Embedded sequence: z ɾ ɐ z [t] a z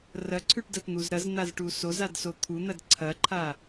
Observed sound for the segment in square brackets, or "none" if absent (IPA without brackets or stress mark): n̪